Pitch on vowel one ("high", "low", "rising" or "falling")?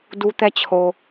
high